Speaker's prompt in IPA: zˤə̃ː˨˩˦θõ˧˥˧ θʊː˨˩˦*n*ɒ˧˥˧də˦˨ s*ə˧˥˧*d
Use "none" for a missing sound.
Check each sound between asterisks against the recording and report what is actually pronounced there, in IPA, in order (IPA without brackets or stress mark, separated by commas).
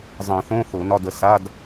n, a˧˥˧